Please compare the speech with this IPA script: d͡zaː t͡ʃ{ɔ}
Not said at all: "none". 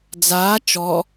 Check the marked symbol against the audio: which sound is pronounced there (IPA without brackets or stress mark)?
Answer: ɔ